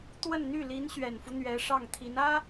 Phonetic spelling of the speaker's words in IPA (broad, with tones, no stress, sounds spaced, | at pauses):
t̪ w ə˥˧ n n̪ y˥˩ l i˧˥ n ɕ ɥ ɛ˨˩ n f u˦ n̪ ɥ ɛ˧˥ ʂ ɑ˥˩ ŋ t̪ʰ i˧˥ n ä˥